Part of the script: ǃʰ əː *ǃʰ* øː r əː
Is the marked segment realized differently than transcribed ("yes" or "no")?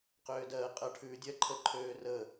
no